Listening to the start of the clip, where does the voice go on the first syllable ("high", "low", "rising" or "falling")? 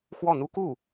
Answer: falling